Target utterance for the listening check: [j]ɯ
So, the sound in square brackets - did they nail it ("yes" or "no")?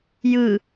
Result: yes